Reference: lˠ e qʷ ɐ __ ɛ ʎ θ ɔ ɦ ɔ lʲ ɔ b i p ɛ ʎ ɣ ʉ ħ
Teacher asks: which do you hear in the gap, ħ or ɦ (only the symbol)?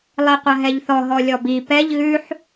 ɦ